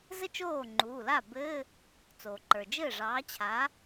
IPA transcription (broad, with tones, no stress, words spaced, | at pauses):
zɘ˥t͡ʃoː˥˩ŋ͡ǃuː˩˧˩la˥˩ bɘ˧˥˧ | t͡soː˩ǃə˞˩d͡ʒɘː˥˩ ʐɑː˨˥t͡ɕʰa˨˥